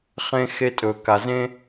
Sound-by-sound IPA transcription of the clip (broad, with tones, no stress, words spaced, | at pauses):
χẽ˧xe˧ tʼɵ˩ ka˩zẽ˧